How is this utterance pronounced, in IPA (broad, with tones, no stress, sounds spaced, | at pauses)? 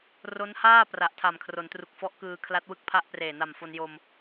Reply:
r o˦˥ n h aː˥˩ p r a˨˩ ʔ tʰ a˨˩ m kʰ r o˩˦ n t r u˨˩ k̚ f ɔ˦˥ ʔ k ɯː˧ kʰ l a˦˥ t̚ w ɯ˥˩ k̚ pʰ a˥˩ ʔ p r eː˨˩ n a˨˩ m f o˧ n j o˧ m